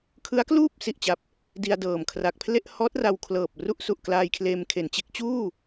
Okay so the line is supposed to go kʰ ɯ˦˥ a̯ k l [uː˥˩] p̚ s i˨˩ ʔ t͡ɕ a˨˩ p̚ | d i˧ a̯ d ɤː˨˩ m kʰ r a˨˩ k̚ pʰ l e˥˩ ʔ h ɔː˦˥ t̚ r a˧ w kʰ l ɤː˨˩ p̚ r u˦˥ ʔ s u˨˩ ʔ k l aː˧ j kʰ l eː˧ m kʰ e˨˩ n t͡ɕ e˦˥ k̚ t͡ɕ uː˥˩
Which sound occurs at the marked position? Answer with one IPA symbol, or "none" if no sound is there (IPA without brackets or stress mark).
uː˥˩